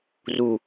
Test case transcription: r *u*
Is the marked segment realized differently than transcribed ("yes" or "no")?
no